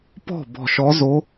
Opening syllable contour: falling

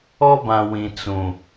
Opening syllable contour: high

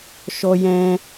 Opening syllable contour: high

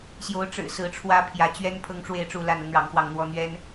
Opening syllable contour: rising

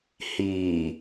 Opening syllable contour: low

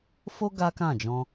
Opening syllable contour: high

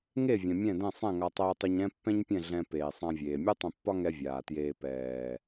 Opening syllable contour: falling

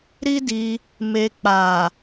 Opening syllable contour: high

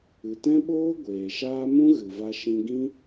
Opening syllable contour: low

